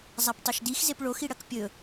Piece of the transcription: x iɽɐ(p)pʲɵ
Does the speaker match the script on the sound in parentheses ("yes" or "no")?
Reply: no